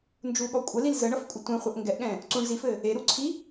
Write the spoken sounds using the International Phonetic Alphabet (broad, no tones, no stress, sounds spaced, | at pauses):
n d͡ʒ u ɠ ɔ kʷʼ ə l i l z ə ɳ ʌ f kʷʼ ɘ tʷ ɛ̃ χʷ ə ʔ ŋ ɡ ɛ ʔ ɠ ɛ̃ | ǀ u ɳ z i f ɘ | e ɾ u ǀʰ i